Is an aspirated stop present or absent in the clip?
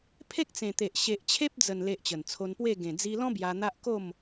present